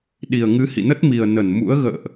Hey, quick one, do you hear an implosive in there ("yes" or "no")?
yes